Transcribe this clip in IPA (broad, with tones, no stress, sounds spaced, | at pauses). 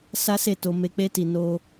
s a˦ s e˦˨ t o˧ m e˧ k͡p e˦ t i˧ n o˧